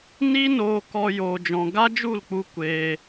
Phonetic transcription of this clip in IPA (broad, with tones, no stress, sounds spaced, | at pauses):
n i˦ n oː˧ k ɔ˧ j oː˧ d͡ʒ ɔ̃˧ ɡ a˦ d͡ʒ u˦˨ l k͡p u˧ kʷ eː˧